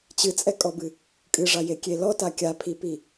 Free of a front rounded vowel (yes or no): yes